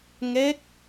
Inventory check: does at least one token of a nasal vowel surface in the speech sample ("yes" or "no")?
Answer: no